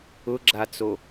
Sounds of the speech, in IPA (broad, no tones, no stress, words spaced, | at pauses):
ʊɡ͡ǁat͡so